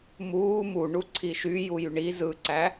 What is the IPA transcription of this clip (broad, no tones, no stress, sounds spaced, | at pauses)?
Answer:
m uː m u ɳ u ǀʰ i ʃ y j u j y ɳ i z ɯ ǀ æ